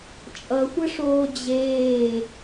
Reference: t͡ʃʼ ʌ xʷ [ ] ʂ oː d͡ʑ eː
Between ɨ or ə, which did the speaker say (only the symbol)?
ə